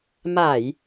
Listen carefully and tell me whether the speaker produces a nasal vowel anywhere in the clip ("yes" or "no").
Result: no